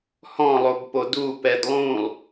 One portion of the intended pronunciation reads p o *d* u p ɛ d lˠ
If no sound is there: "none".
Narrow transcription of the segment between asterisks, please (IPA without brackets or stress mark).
d